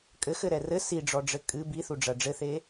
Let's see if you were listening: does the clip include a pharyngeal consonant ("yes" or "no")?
no